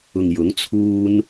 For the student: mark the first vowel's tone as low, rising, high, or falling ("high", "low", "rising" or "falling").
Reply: low